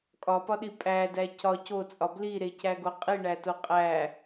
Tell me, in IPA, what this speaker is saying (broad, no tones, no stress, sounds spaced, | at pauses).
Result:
kʼ ɒ p ɒ ɗ i pʼ æ d æ c ɒ c o t͡sʼ ɒ b l i ɾ e c æ ɡ o qʼ i ɳ æ t o qʼ æ